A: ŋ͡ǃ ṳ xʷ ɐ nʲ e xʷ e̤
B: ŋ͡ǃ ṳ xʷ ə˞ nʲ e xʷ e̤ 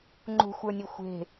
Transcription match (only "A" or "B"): B